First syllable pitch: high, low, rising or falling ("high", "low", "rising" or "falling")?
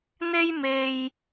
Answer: high